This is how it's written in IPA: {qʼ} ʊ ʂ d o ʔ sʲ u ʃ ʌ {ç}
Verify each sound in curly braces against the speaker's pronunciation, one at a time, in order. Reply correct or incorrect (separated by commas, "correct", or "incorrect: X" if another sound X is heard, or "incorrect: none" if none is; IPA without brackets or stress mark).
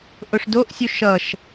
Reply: incorrect: ʔ, incorrect: ʃ